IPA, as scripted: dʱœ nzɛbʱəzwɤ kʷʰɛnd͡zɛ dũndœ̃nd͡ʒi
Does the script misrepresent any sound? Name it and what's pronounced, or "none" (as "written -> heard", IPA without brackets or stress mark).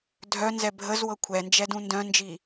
d͡z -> d͡ʒ